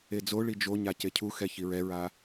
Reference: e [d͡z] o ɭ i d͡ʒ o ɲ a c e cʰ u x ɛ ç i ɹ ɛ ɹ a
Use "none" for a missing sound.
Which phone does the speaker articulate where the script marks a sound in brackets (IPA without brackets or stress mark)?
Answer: d͡z